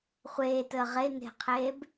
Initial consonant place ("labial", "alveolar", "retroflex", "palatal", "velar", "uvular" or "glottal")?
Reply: uvular